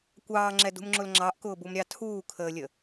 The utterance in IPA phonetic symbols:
kʷ ɑː ŋ͡ǁ ɛ d ṳ m ŋ͡ǁ ʊ l ŋ͡ǁ ɑ ʔ k ʊː b u m ɾʲ ɑ tʰ uː kʰ əː lʲ ə

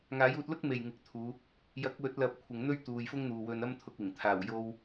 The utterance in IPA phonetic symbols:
ŋ aː˨˥ j uː˧ t̚ l ʊ˥ k̚ m e˨˩ j ŋ ɪ˨˥ k̚ t̪ʰ uː˨˧ | j ɐ˨˥ k̚ w ɵ˨˥ t̚ l ɐ˨ p̚ kʷʰ ɪ˨ ŋ n̪ ɵ˥ ɥ t̪ uː˨ j f ʊ˥ ŋ n̪ uː˨ w ɵ˧ n ɐ˥ m t̪ʰ ʊ˧ k̚ ɪ˨˩ ŋ t̪ʰ aː˨˩ w j o˧ w

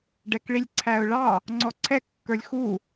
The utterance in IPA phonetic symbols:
ɖ ɛ k ɭ i lʲ ǀʰ æ ʊ̯ ɭ ɑ | ŋ͡ǀ ɔ ǀʰ ɛ kː ə˞ lʲ x u

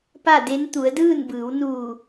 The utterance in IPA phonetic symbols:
p a˥˨ d e˧˥ n t̪ u˩˧ ə̯ d ɯː˥˨ n b ɯː˩˧ w n uː˧˩

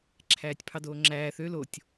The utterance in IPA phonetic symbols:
ǁʰ æː tʲ pʰ ɑ d oː ŋ͡ǁ æː θ ø l o tʲ

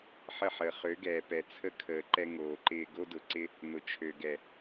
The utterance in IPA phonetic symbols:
ħ ə˦˨ ħ əː˨ χ ø˨˦ ɡ ɛː˨ p ɛ˨ t͡sʰ ə˦ kʰ əː˨ ǃ ɛ˧ ŋ oː˨ ǃ ɪː˧ ɡ o˦ d ʊ˨˦ ǀ ɪ˦ | n ʊ˨ t͡ʃʰ ø˨ ɡ ɛ˨

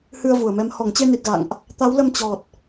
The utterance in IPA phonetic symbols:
h ɨ˧ ə̯ v u˧˩ ə̯ m ɛ˨˦ m h ɔ˧˩ ŋ t͡ɕ e˧ n i˨˩ t̚ ɣ a̰˧˨ ŋ ʔ | t̪ a˨˦ w l ə˧ m t͡ɕ ɔ˨˩ t̚

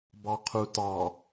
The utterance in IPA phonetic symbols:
b ɑ qʰ u t ɑ

